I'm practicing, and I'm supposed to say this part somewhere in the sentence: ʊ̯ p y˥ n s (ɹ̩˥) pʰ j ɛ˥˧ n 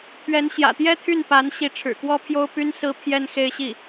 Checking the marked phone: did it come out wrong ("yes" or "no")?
no